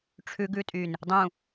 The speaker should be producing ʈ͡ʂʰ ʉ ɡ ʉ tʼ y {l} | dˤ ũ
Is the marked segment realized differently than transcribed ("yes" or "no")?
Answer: yes